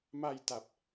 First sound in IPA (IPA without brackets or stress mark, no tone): m